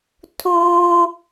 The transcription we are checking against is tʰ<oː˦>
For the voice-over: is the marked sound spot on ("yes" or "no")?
yes